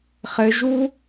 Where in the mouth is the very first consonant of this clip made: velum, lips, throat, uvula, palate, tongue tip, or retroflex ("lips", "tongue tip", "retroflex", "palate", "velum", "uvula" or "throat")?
uvula